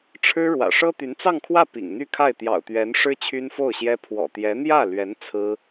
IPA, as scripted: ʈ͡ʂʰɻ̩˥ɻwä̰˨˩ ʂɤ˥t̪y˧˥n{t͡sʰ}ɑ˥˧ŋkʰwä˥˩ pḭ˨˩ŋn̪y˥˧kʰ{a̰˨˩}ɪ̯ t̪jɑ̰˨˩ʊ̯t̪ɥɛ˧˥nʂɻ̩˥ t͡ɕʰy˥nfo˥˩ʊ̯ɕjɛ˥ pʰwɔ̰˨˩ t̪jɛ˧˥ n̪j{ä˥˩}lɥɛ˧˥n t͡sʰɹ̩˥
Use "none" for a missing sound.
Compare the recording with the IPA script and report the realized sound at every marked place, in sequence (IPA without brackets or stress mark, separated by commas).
t͡s, a˥˩, ä˥˩